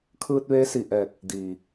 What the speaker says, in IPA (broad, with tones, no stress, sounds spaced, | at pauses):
kʰ ɯː˧ t̚ ʋ eː˧˥ s i˧˩ ʔ ɛː˧˩ k̚ | d iː˩